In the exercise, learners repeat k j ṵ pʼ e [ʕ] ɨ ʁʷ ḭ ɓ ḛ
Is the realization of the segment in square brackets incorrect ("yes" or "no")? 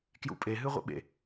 yes